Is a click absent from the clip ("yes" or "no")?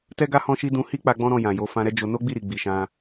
yes